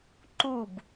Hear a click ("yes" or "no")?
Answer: yes